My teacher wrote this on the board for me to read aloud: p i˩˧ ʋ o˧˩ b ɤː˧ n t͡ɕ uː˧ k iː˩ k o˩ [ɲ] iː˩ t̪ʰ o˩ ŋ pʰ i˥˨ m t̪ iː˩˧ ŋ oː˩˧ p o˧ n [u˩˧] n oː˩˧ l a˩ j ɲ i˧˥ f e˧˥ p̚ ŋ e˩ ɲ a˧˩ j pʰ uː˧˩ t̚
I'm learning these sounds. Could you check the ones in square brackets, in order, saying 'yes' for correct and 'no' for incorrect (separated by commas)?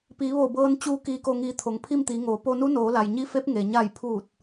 no, no